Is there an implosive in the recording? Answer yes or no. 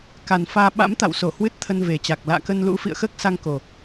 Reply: yes